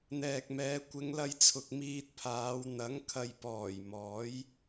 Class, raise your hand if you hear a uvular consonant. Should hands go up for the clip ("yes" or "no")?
no